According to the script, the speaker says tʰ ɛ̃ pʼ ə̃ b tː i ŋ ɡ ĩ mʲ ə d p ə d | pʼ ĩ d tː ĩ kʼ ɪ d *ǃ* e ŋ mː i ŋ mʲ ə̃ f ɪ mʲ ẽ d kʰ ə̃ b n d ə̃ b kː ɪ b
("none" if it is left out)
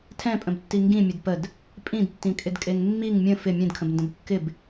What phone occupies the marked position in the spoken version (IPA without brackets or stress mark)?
kʼ